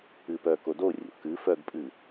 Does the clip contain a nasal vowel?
no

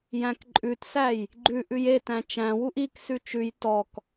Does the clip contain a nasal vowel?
yes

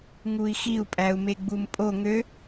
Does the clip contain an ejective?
yes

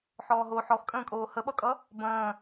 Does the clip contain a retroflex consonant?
no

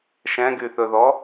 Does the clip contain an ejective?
no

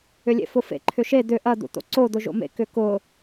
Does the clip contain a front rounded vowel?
yes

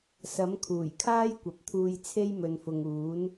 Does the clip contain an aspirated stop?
yes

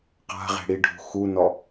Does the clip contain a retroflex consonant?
yes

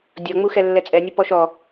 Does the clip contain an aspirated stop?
no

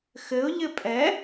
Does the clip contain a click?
no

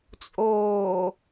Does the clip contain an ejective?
yes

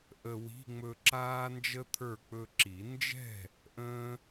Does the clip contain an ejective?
no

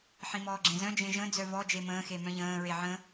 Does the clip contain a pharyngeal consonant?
yes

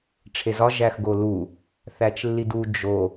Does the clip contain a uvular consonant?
no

